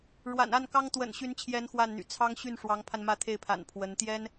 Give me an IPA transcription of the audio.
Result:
ɻ w a̰˨˩ n a˥˩ n k ɑ˥ ŋ t̪ w ə̰˨˩ n ɕ y˧˥ n t͡ɕʰ j ɛ˧˥ n x w a˥˩ n n̪ y̰˨˩ t͡sʰ ɑ˥ ŋ ɕ y˥˩ n ʂ w ɑ˧˥ ŋ pʰ a˧ n m ä˥˧ t̪ʰ e˥˩ ɪ̯ pʰ a̰˨˩ n pʰ w ə˧˥ n t̪ j ɛ˥ n

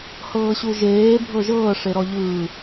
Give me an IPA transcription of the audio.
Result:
h ɤː ɕ u ʒ eː bʱ ɤ ʒ ɤː ʂ e ɾ ɔ ʎ ɯː

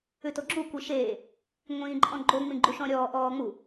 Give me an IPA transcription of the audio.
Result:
ʉ t o ɡ͡ǁ u kʷ i ʃ eː | ŋʷ ĩː ǃʼ ɔ̃ ɡ͡ǃ o ŋ͡m ĩ ɡ͡ǃ u ʃ ɔ̃ ɾʲ ɔː ʔ ɔː ŋ͡m u

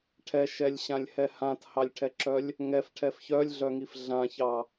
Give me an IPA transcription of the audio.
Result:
ʈʰ ɛ ʃ ɛ lʲ ɕ ã lʲ h ɛ h ã t h ɑ lʲ ʈʰ ɛ ǁ œ lʲ | ŋ ɛ f ʈʰ ɛ f ç œ lʲ ɮ œ ŋ i f ɮ ã ç ɑ

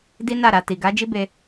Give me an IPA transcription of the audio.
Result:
d i˦ n a˦˨ ɾ a˨ t i˨ ɡ a˨˦ d͡ʒ i˦ b e˧

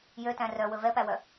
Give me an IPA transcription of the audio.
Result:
j ø t æ̃ r œ w ɵ v ɛ p æ w œ

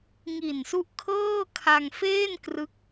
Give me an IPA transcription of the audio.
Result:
ŋ i˨˩ n s u˦˥ ʔ kʰ ɤː˥˩ kʰ a˧ ŋ f eː˥˩ n k r ɯ˦˥ k̚

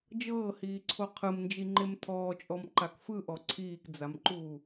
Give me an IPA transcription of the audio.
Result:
d͡ʒ ɤː h iː ǀʰ o qʰ ɯ m n d͡ʒ i ŋ͡ǃ e m tʰ ɔː t͡ʃʼ ɔ m ǃ a k f ɯ ʔ ɔ ǀʰ iː k d͡z a m ǃ uː

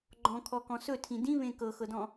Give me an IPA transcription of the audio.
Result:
ɡ͡ǃ ɔ̃ kʰ ɔ k ɔ̃ s ɵ tʰ ĩ d ĩ β ẽ k ɤ x ɤ d ɔ̃

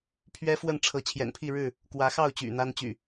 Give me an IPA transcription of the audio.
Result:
pʰ ɥ ɛ˦ f w ə˥˨ n ʈ͡ʂʰ ɤ˨˦ t͡ɕʰ j ɛ̰˨˩ n pʰ i˥˨ ɻ ɻ̩˥˨ | k w ä˨˦ x ɑ˥˨ ʊ̯ t͡ɕ y̰˨˩ n̪ a˦ n t͡ɕ y̰˨˩

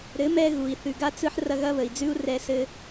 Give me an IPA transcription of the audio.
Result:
ɾ ɘ˨˦ m ɛ˧ ɣ u˨ i̯ θ ʉ˨ ɡ a˦ t͡s ɯ˧ ħ r ɐ˦ ɣ ɐ˦ β ə˨ i̯ d͡z ʉ˦ u̯ r ɛ˧ s ɘ˧

